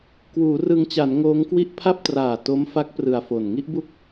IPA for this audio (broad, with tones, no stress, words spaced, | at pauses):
kwuː˩˦rɯ˧ŋt͡ɕa˩˦n ŋoː˦˥ŋkwi˥˩ʔ pʰa˥˩p̚traː˨˩to˦˥mfa˦˥k̚ prɯ˨˩a̯fo˨˩n ŋi˥˩ʔbu˥˩k̚